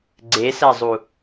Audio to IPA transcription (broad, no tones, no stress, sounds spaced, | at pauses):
ɡ͡ǀ e s æ zˤ u